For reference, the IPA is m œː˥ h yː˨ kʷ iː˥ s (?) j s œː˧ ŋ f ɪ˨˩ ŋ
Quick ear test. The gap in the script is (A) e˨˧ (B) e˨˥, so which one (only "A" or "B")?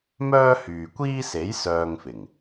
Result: B